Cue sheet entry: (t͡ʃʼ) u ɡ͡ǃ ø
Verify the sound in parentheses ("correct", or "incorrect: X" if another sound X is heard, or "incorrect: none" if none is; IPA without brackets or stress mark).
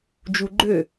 incorrect: d͡ʒ